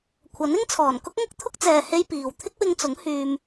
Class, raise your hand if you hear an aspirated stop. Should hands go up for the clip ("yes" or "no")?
yes